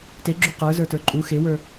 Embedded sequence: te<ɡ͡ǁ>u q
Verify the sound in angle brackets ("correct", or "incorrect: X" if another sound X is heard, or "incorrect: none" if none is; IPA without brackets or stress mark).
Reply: correct